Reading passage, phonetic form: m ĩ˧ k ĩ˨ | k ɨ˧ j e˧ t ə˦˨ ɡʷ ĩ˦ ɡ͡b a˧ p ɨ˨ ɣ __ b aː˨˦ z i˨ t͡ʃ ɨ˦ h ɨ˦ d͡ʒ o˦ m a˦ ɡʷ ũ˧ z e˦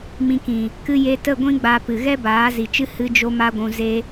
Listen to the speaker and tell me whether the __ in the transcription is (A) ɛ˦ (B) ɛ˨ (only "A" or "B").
A